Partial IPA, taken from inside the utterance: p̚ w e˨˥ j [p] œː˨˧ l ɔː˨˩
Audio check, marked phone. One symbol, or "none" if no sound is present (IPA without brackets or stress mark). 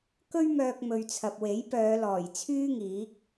p